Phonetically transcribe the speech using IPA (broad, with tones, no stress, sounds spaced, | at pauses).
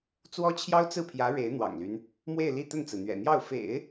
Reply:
t͡s w ɔ˥ t͡ɕʰ j ɑ˥ ʊ̯ t͡s ɹ̩˥˩ pʰ j ä˧˥ ɻ e˧˥ ɪ̯ n̪ w ɑ̰˨˩ ŋ l y˦ n | m w e˥˧ ɪ̯ l i˥˧ t̪ ə˥˩ n t͡s ɹ̩˩ n̪ ɥ ɛ̰˨˩ n̪ j ɑ˥˩ ʊ̯ f ḛ˨˩˦ ɪ̯